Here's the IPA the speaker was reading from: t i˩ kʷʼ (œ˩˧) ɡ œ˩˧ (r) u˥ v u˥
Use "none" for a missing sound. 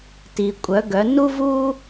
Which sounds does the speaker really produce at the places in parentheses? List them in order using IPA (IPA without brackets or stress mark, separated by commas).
œ˩˧, n